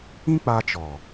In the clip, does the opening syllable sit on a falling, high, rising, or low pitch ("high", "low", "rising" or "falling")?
high